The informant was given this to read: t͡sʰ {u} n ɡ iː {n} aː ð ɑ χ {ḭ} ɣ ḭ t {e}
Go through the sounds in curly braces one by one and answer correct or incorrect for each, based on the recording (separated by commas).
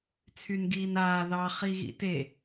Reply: incorrect, correct, incorrect, correct